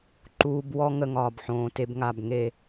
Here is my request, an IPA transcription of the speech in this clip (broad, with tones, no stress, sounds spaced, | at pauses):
ǃ uː˧ b w ɔ˦ ŋ ə˧ ŋ ɒː˨ b ħ õː˨ t e˦ b ŋ a˦˨ b ŋ e˦˨